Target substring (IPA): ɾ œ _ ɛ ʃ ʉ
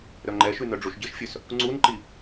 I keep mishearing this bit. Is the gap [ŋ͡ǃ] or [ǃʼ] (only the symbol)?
ŋ͡ǃ